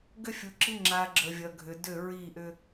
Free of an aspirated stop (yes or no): yes